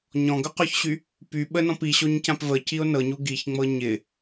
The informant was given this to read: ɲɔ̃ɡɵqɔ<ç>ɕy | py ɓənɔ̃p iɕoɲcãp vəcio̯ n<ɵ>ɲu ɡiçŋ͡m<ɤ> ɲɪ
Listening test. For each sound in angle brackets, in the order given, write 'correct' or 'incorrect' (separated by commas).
correct, incorrect, correct